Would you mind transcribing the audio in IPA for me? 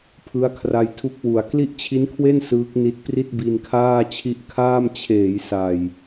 pʰ ɯ˦˥ a̯ kʰ r a˧ j tʰ u˦˥ k̚ w u˨˩ a̯ k l i˥˩ ʔ t͡ɕʰ i˦˥ n kʰ w e˥˩ n s ɯː˦˥ k̚ n i˦˥ t̚ p r i˥˩ t̚ b i˧ n kʰ aː˥˩ t͡ɕʰ i˦˥ ʔ kʰ aː˥˩ m t͡ɕʰ eː˩˦ j s a˨˩ j

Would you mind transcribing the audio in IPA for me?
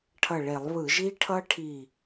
ʈʰ ʌ˧˩ ɭ e˧˩˧ lˠ β ɯ˧˩˧ ʒ i˦˥ ʈʰ ʌ˦˥ ʈʰ i˧˩

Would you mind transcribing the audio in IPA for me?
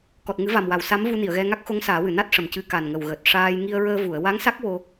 k ɔ˨˩ t̚ ŋ ɨ˨˩˦ v a˨˩ m w a˨˩ w s a˧˥ m v u˧ n i˨˩˨ ə̯ ɣ ɛ˧ ŋ a˦˥ k̚ x o˧˥ ŋ s aː˨˩˦ w ɨ˨˩˨ n a˦˥ t̚ ʂ ə˨˩ m c ɨ˧ k a˨˩ n ŋ ə˨˩ w ɣ əː˨˩ t̚ ʂ aː˧ j ŋ i˧ ə̯ ɹ əː˧ v u˨˩˨ ə̯ w a˧˥ ŋ s a˦˥ k̚ w o˧

